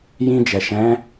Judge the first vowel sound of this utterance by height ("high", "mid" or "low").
high